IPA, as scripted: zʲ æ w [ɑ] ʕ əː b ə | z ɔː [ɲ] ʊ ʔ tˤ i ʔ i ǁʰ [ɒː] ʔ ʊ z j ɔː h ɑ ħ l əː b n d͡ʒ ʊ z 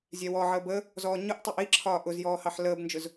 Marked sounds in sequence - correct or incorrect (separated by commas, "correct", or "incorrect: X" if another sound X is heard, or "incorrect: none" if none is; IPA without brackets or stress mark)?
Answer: incorrect: ɔ, correct, correct